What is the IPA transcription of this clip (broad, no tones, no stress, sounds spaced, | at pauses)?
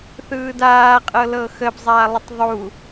θ ɯː d aː qʼ ɤ l ɤ x ə b zˤ aː lˠ ə tˤ ðˤ u